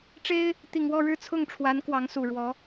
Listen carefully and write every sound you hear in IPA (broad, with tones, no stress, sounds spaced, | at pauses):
ʈ͡ʂ e˥ ɪ̯ | t̪ i˨˩ ŋ w ɔ˥˧ ɻ ɻ̩˥˧ t͡sʰ ʊ˥˩ ŋ ʈ͡ʂʰ w a˧˥ n k w ɑ˧˥ ŋ s u˨˩ ɻ w ɔ˧˥